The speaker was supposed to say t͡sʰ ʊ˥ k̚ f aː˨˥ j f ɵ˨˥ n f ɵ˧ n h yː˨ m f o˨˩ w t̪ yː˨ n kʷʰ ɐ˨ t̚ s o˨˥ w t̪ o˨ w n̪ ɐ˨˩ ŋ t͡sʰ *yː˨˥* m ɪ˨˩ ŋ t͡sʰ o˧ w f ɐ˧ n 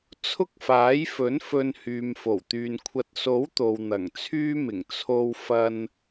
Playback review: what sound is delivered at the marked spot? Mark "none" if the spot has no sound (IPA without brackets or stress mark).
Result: yː˥